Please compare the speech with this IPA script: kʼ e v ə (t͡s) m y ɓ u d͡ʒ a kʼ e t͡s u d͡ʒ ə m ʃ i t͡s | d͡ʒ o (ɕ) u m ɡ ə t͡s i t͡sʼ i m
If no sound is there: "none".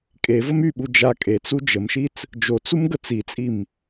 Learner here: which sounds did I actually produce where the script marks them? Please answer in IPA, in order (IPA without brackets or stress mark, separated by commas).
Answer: none, t͡s